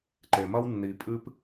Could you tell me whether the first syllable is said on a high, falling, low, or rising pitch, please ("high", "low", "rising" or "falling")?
low